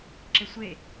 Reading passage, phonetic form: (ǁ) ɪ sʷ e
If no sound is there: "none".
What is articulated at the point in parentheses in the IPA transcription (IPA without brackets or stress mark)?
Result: ǁ